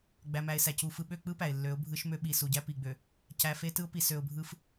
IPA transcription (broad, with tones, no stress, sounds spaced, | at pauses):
ɡ͡b æ˨ m æ˨ ɪ̯ s æ˨ c u˨ f ɯ˨ ɓ ø˦˨ k͡p ɯ˦ p æ˨ ɪ̯ lː ø˨˦ ʊ̯ bʱ ɯ˦ ʃ m ø˦ ɓ i˨ s u˨ ɟ æ˦ p i˨ ɡ͡b ø˨ | c æ˨ f e˦ t ɯ˦ ʊ̯ p i˨ s ø˨ ʊ̯ bʱ ɯ˦ f